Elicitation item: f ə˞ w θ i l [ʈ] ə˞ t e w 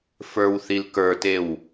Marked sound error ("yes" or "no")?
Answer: yes